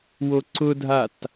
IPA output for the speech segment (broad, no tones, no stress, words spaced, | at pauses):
woǀʊdʱat